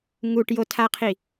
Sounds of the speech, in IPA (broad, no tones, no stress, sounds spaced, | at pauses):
ŋ u ʈ j o tʰ a qʰ i